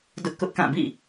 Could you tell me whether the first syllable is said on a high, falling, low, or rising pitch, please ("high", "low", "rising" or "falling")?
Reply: high